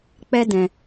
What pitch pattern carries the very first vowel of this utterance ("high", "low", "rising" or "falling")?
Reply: high